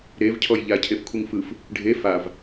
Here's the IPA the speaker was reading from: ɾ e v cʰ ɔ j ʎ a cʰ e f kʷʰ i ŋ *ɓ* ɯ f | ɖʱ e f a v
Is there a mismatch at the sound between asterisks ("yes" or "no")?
yes